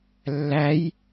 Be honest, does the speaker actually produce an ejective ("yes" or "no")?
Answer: no